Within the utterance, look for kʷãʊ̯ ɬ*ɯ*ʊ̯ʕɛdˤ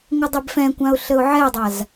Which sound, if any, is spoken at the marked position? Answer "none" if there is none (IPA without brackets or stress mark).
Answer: ə